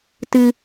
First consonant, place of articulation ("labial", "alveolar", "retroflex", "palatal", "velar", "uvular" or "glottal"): alveolar